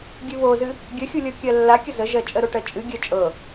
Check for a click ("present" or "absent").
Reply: absent